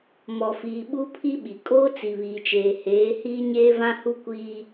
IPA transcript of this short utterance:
mɔ˨fiː˨ ɓu˦pʰi˦ɓi˨ kʼoː˦t͡si˨βiː˨t͡ʃeː˨ heː˨˦ hiː˦ɲeː˦vã˦ hu˦kʷiː˦

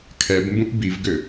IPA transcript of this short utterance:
kʰɛbmbũʔ bivɡø

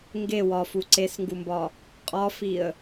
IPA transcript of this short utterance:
ŋɡe wɒfu ǀesŋɡumbɒ | qʼɒfiə̯

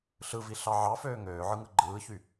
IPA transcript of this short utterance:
ɬɯvi ɬɑʕɑføː ŋøːʕɯŋɯ ɡ͡ǃɯːçy

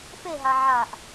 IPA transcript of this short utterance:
feɦa ʕaʔ

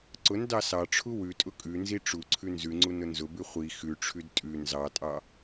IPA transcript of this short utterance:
ǀʊn dɑsɑʈ͡ʂʰu wʉtʼʊ kʼʉnzi ʈ͡ʂu ǀʰʉnzʉŋ͡ǀu nʊnzʊbʉ χʷi xʉʈ͡ʂʰʉd tʼʉ nzɑtʼɑ

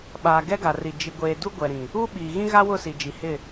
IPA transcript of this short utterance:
ɓaː˨ɡɛ˦ɡa˨ri˨ d͡ʒi˨ɡʷeː˨ du˦ɡʷɛ˨ɾĩ˨ | u˦ɓiː˨ ɣĩ˦ɣa˦wʊ˦˨ si˨d͡ʒi˨ hɪ˦˨

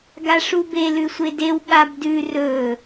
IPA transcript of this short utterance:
ɡaʂube lʉsʷedew ɠabdʉ rɵ

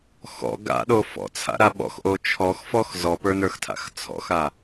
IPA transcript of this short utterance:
xɔ̰ ɡa̰ɗo fɔ̰t͡sʰa̰ɾa ɓɔ̰xʔo t͡ʃʰɔxfɔx zɔpə˞nə˞xtʰa̰x t͡sʰɔ̰xa

